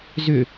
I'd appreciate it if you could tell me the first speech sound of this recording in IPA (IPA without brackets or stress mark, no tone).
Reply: z